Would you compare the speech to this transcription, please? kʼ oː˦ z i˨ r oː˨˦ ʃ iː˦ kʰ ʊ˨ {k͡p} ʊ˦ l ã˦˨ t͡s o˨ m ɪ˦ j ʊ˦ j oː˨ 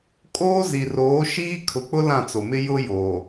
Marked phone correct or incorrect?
correct